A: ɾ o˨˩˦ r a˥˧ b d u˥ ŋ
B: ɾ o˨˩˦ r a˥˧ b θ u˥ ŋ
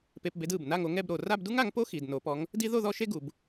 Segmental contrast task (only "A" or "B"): A